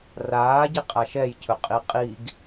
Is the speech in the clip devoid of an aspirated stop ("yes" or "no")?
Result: no